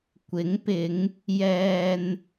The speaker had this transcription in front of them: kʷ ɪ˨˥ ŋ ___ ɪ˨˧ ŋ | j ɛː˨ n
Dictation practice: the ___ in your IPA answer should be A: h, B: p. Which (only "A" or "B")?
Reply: B